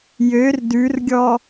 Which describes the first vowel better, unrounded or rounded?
rounded